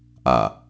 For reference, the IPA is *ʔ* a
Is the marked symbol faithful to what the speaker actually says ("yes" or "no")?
yes